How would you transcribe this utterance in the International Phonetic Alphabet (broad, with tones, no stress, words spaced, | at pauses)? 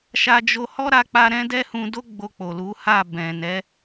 ʃa˧ d͡ʒo˧ hɔ˦ɾa˧k͡pa˧ ɾɛ̃˦dɛ˦hũ˧do˦ ɡ͡bo˧k͡po˨lu˨˦ ha˦˨ bɛ̃˨nɛ˨˦